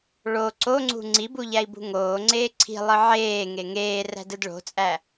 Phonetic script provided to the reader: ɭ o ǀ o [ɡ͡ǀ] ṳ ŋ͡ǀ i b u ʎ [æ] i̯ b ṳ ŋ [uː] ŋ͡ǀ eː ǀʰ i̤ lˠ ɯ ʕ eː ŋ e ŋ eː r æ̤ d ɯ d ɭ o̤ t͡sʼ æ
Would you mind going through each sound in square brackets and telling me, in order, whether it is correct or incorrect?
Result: incorrect, correct, incorrect

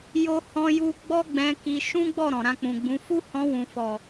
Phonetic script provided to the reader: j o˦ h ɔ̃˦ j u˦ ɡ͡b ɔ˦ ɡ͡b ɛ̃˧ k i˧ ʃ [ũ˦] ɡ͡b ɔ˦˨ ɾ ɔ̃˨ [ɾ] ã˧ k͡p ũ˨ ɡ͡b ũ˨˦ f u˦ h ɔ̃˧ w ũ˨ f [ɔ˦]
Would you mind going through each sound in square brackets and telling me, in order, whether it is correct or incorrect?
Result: correct, correct, incorrect

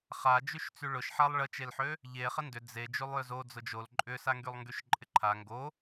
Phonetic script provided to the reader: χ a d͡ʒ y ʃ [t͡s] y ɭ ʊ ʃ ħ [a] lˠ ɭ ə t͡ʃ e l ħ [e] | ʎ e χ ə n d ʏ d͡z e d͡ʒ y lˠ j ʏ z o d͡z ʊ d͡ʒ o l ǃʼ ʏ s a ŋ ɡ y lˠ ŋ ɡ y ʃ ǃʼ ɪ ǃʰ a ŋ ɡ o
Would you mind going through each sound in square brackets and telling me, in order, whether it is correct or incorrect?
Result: correct, correct, incorrect

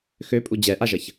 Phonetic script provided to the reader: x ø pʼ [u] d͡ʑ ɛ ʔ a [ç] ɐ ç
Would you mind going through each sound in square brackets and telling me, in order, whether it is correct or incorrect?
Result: correct, incorrect

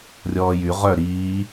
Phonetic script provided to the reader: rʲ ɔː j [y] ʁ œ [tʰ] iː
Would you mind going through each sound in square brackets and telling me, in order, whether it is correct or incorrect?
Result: correct, incorrect

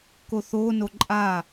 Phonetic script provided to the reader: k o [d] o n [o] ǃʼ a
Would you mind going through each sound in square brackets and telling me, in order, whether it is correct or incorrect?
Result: incorrect, correct

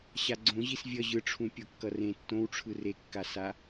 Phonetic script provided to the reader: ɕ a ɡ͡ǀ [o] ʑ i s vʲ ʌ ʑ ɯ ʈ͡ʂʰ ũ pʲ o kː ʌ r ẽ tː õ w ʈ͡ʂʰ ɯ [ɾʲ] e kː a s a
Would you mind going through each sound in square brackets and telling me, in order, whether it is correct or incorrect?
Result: incorrect, incorrect

